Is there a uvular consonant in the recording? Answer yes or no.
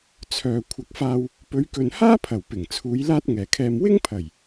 no